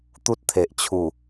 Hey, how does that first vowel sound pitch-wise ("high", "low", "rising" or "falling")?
high